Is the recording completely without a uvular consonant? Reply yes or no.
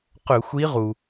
no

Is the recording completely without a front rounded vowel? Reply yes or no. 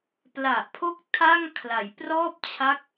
yes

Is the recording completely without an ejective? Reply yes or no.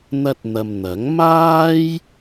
yes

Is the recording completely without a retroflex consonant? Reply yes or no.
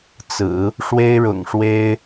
no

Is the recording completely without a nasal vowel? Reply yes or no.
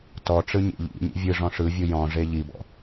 no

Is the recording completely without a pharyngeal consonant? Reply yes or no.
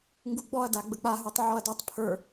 no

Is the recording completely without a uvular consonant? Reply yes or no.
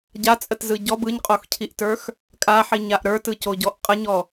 no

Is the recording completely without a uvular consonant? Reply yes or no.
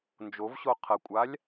no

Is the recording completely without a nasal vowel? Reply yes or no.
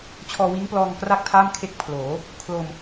yes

